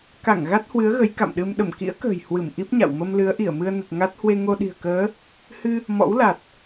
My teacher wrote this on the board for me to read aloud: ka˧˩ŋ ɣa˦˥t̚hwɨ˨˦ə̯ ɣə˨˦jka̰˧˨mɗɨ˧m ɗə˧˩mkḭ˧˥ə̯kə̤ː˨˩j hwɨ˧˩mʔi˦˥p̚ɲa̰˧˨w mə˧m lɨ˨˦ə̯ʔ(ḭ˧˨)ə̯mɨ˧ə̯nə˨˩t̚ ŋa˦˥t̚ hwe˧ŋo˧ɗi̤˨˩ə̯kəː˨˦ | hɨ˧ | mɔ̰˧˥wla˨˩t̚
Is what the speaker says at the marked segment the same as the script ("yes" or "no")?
no